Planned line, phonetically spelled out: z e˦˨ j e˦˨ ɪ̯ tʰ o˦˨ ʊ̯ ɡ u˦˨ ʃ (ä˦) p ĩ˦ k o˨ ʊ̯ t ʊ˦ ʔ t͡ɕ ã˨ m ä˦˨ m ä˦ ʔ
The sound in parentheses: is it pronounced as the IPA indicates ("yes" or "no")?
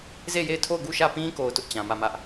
no